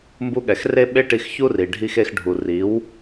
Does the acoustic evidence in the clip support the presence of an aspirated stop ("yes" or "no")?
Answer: no